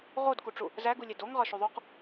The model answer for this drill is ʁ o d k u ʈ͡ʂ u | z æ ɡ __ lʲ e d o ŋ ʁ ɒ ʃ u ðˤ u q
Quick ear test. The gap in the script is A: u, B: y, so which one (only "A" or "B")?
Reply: A